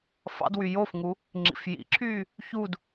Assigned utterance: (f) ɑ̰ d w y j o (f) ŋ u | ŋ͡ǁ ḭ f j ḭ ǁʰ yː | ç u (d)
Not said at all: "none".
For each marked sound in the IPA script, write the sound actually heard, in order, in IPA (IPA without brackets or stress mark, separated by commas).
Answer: f, f, d